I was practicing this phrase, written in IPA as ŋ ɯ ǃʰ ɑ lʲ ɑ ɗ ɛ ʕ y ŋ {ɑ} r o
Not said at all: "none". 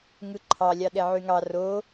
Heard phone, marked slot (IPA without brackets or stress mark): ɑ